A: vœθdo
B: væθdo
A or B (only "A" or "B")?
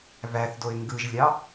B